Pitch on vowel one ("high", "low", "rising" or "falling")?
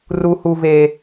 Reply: high